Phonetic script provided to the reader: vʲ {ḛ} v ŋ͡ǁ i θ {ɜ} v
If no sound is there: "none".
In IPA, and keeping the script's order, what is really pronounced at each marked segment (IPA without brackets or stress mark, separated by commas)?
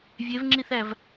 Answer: e, æ